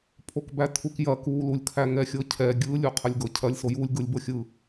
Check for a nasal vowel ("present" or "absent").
absent